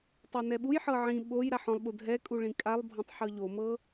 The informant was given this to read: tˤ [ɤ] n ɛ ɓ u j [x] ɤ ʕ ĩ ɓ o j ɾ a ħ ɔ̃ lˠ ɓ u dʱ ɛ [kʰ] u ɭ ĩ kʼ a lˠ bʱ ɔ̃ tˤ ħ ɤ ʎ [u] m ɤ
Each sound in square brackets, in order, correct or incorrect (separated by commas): correct, incorrect, incorrect, incorrect